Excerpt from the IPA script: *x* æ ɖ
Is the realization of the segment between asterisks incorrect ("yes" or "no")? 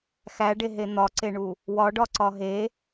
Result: no